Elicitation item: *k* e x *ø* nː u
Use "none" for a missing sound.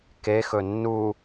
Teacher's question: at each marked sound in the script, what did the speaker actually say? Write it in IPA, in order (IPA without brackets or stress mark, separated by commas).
k, ɵ